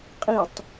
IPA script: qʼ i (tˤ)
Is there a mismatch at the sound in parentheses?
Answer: no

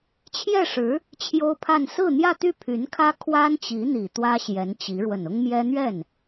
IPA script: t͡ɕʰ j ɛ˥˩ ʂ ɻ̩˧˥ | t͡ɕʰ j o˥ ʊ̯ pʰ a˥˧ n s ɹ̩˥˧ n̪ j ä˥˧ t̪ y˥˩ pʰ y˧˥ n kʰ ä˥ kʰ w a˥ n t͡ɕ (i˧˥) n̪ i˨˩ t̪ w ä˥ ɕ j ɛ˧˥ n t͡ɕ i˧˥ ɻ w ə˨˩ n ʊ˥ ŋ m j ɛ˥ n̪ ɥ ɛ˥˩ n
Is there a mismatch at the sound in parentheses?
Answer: no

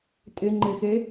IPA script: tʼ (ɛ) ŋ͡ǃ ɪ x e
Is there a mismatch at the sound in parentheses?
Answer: yes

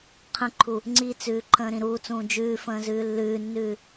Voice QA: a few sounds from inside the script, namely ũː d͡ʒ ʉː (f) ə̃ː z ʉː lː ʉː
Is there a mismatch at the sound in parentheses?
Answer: no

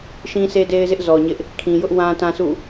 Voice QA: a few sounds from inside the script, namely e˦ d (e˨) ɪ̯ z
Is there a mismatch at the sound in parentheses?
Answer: yes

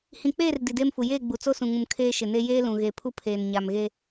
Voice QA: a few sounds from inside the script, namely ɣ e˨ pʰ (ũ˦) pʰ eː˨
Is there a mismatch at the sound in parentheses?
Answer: yes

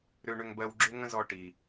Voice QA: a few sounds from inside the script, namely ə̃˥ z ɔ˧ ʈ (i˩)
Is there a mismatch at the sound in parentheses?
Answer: no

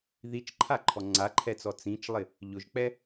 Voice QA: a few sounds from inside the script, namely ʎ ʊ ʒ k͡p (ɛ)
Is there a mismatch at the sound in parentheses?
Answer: no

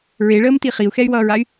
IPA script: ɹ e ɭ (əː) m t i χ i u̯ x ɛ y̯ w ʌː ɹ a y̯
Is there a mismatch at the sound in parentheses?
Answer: no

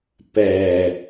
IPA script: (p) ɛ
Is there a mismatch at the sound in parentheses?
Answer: no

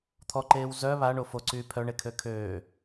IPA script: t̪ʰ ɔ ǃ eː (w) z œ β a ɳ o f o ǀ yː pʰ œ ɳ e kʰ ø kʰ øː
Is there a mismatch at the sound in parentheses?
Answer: no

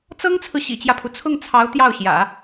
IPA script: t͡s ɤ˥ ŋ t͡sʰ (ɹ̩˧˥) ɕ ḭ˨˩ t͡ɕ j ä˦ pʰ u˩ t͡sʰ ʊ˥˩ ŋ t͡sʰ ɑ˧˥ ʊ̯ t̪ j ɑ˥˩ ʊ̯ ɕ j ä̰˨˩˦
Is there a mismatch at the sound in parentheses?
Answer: yes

